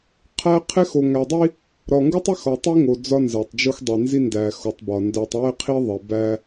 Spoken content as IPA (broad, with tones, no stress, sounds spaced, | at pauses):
qʰ æ˦ qʰ e˦ x o˨ ŋ æ˨ dˤ i˦ | ɾ ɒ˨ ŋ ɡ u˦ tˤ i˦ x ɒ˨ tˤ i˦ ŋ o˨ d͡z ɒ˦ n z æ˨ tˤ d͡ʒ o˦ x dˤ e˨ n z i˦ n d æ˨ x o˨ tˤ b ɒ˨ n d æ˨ tˤ w e˦ qʰ i˦ ðˤ e˨ b æ˦